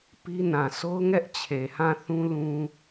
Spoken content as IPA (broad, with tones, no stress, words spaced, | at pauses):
pi˦nã˨ sʰo˦ʊ̯ŋɛ˦ʔ t͡ɕʰe˨hã˦˨θũ˦lũ˦